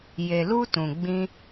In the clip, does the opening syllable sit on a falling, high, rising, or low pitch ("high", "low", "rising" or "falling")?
low